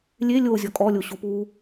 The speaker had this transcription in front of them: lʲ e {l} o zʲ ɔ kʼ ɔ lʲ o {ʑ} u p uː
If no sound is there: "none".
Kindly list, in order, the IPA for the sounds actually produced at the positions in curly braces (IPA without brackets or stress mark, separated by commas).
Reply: lʲ, ɕ